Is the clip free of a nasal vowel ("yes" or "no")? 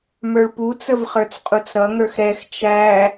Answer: yes